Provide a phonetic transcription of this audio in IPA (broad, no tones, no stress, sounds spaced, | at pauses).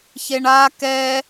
ç e ɳ a k ɛ